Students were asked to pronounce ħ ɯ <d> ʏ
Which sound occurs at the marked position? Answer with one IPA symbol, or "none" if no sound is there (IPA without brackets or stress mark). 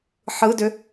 d